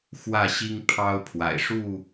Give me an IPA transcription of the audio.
x w ä˥˨ ɕ i˦ ŋ pʰ ɑ˦ ʊ̯ pʰ w a̰˨˩ ɪ̯ ʂ u˥˨

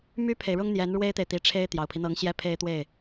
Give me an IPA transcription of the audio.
m y˥ pʰ e˨ ɪ̯ ɻ ʊ˥ ŋ n̪ j ɛ˧˥ n ɻ w e˥ ɪ̯ t̪ e˨ ɪ̯ t̪ i˧˥ ʈ͡ʂʰ e˥ ɪ̯ t̪ j ɑ˨˩ ʊ̯ pʰ i˦ n̪ ɤ˧˥ ŋ ɕ j ɛ˥ pʰ e˥ ɪ̯ t̪ w e˥˩ ɪ̯

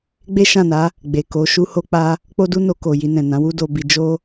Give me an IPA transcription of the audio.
ɡ͡b e˦ ʃ ã˦˨ n a˨˦ | ɡ͡b e˨ k o˨˦ ʃ u˦ h o˦ k͡p a˦ | k͡p o˦ d u˦ n o˧ k o˨ j i˧ n ɛ̃˨ n ã˨˦ w u˦ d o˧ b i˧ d͡ʒ o˦

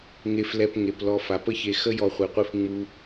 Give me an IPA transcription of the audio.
ŋ e˨ f l ɛ˨ p ŋ e˩ p l ɔ˨ f a˩ p ə˦ ç e˨ x ə˦ j ɔ˨ χʷ e˩ qʷ i˨ f ŋ͡m u˨

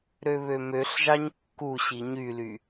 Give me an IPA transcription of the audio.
ɾ ø β ø m ø ɬ ʒ ɑ ɲ kː u ɕ i ɲ y l y

